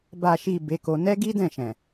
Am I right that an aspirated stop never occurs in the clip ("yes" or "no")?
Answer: yes